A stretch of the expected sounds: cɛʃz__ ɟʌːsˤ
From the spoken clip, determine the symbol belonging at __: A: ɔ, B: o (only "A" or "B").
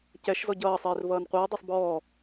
A